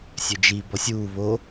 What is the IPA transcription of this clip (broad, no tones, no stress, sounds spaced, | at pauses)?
sʲ ø d͡ʒ i b ɔ sʲ uː β o